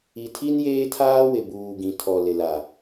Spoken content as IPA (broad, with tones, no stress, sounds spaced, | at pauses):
i˨ tʰ i˦ n j eː˦ tʰ aː˦ w ɪ˨ b uː˨ ɡ ĩ˨ tʰ ɔ˨ l ɪ˨ l a˨